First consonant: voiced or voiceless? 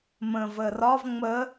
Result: voiced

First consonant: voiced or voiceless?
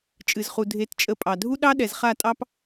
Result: voiceless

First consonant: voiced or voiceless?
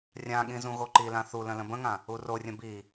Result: voiced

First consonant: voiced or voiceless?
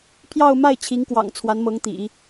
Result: voiceless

